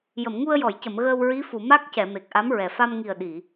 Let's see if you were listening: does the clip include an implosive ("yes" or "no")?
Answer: yes